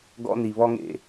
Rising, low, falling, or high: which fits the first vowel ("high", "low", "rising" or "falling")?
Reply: high